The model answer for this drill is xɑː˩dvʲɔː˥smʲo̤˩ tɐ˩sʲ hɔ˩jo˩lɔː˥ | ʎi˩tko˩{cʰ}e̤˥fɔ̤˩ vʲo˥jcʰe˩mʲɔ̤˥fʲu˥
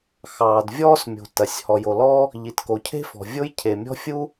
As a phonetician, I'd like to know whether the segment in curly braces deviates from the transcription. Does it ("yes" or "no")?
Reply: no